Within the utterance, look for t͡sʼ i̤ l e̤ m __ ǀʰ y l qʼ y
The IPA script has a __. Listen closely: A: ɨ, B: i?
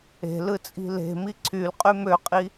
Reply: B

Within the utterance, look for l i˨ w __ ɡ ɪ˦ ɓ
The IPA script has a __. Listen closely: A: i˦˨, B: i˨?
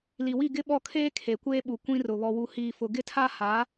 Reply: A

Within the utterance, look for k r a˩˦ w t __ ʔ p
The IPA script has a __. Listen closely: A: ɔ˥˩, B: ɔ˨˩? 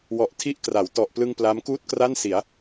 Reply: B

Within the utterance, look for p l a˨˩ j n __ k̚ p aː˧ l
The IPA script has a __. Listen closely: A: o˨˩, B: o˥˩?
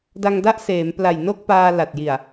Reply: B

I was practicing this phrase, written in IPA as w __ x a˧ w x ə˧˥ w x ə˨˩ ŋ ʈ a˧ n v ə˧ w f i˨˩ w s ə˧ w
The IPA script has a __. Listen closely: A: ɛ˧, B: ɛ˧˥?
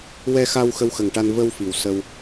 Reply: A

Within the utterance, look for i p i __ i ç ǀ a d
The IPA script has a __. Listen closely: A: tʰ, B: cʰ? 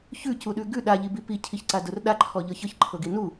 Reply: B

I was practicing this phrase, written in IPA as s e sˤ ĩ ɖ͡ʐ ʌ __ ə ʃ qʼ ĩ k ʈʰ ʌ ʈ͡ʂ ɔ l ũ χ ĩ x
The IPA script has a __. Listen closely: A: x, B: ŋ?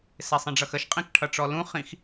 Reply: A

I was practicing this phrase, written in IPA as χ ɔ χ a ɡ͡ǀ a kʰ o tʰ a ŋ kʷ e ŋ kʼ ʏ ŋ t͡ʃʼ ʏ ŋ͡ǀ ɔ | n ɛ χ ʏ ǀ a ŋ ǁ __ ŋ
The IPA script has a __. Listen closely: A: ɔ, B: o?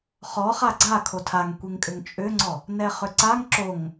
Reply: B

